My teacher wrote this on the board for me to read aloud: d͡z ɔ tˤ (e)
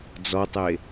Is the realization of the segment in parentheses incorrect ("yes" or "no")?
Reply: no